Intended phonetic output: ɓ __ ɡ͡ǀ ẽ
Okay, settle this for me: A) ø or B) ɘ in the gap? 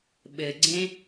B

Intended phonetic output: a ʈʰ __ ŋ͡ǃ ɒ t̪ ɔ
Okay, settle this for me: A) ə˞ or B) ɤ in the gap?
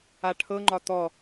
B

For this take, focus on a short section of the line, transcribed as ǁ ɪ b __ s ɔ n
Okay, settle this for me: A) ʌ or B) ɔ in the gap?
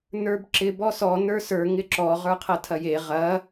B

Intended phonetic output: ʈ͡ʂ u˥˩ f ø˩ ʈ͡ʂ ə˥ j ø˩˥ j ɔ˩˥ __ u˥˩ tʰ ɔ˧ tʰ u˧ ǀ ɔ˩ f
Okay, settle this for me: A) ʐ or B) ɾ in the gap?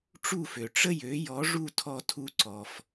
A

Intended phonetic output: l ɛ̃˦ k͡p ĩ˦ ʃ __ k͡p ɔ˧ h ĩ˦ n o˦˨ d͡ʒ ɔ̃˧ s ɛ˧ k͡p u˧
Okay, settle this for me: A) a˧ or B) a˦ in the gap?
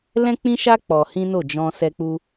B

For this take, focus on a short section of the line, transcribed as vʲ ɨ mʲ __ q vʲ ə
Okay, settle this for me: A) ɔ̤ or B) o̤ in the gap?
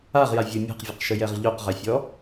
A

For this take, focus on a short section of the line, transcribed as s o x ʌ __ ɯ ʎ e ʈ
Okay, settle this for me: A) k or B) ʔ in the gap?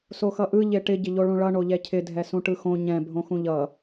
B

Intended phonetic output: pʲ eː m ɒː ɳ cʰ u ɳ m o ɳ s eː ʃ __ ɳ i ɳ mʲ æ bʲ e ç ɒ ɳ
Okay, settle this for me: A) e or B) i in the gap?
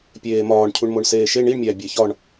A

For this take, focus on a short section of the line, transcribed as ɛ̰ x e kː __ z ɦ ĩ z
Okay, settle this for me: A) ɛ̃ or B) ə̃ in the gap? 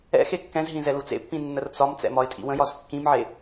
A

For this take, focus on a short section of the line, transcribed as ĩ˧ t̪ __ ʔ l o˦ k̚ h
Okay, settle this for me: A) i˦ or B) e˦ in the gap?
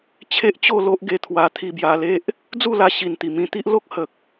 A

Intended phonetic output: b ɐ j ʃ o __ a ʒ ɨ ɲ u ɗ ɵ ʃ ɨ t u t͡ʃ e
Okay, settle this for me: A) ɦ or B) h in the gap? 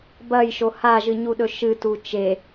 B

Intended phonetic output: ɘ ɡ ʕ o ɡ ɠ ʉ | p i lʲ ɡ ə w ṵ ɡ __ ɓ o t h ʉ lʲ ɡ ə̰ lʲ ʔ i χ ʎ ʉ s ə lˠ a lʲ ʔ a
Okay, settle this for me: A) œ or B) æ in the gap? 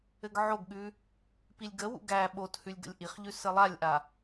B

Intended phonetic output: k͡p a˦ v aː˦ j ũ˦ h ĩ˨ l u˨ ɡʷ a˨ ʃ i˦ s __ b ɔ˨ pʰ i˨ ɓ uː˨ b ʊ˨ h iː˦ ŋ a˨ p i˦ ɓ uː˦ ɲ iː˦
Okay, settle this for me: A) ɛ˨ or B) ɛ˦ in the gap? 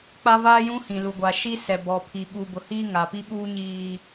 A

